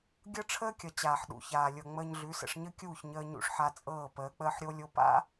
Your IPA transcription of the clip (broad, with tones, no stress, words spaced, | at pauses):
ɡʲɤ˦ʈ͡ʂʰəː˦kʲʌ˨ t͡ɕaː˨ħɗṵ˨çaː˨lʲɤ˨ ŋ͡məː˧ɲɮʉ˨˦sə̰˧ʂ ɲə˦kʲuː˦˨çɲəː˧ ɲṵ˧ʂħa˧t͡sʼɤː˦˨ pəː˨˦k͡pəː˦ħɾʲo˦lʲo˦ pa̰˦